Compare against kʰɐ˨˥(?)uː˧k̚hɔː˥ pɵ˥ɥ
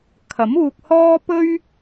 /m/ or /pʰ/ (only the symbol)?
m